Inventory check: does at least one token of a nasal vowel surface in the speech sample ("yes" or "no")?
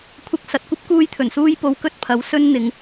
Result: no